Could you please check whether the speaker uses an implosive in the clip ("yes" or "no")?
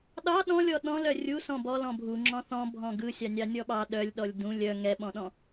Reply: yes